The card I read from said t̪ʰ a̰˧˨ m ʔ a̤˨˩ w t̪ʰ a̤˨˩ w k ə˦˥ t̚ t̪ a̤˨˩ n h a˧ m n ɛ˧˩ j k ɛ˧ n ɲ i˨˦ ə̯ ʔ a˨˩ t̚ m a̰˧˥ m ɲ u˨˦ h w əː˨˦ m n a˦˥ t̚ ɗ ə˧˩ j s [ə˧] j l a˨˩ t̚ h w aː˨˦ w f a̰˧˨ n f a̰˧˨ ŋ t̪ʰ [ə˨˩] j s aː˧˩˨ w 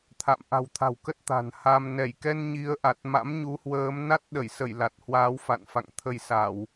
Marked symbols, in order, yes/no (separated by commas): no, no